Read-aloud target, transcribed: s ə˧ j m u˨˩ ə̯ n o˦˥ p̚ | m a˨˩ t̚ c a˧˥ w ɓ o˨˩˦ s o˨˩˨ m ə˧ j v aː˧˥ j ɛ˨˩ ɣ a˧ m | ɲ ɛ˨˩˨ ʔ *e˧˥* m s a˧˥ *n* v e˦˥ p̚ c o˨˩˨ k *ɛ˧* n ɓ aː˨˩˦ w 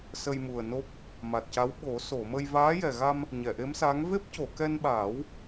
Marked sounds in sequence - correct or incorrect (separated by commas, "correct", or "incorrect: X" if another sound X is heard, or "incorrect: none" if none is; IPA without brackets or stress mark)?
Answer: correct, incorrect: ŋ, correct